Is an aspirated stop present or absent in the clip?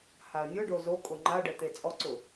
absent